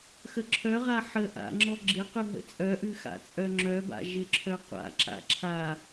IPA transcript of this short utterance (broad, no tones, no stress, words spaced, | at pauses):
xəǁʰœʁa ħə ʔa̰ ŋ͡ǁɔɡ͡ǁɪqʉ ɦə̰t͡sʼœʔʉ xa̰t͡sʼœŋ͡ǁœba̰ ʒɪǁʰœqʷa̰ǁa̰ ǁʰa